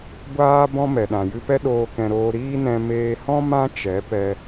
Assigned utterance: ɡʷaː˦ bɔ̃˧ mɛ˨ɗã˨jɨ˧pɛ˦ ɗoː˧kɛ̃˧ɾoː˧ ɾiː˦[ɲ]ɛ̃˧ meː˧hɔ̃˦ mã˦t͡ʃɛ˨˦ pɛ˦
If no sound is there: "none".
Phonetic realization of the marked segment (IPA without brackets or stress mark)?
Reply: n